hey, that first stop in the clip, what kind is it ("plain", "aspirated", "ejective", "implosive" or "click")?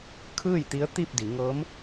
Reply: aspirated